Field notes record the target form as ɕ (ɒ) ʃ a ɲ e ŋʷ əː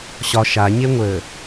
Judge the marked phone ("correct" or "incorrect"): correct